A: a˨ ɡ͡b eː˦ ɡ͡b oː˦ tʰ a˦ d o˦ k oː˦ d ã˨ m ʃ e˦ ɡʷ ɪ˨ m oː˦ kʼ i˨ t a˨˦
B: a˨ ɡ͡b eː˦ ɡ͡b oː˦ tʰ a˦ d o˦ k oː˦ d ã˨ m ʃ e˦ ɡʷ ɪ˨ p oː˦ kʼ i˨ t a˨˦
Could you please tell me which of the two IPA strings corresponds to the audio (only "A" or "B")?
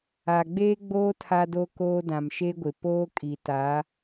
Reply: B